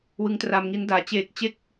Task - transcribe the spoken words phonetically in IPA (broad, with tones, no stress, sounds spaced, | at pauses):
w ɯ˦˥ ŋ t r a˧ m ŋ i˦˥ n d aː˨˩ t͡ɕ eː˨˩ k̚ t͡ɕ e˦˥ k̚